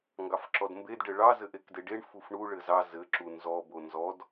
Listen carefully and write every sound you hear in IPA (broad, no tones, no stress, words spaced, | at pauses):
ŋɡɑfǁɔdmbed ɖɘɭɑ zɘʔekdeɖeɳ fufɳu ɭɘzɑ zɘ ǁunzɔ bonzɔd